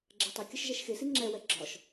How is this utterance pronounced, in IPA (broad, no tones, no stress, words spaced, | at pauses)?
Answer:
ɡ͡ǁɛtˤɐkʲɐʃ ʒɛʃxesi ŋ͡ǁɛwɛ ɡ͡ǁɒʃ